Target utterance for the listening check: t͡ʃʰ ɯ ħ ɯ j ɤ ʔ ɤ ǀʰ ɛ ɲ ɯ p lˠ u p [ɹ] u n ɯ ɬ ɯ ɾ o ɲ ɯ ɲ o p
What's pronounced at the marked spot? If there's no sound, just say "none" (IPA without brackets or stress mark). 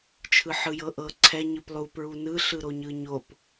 ɹ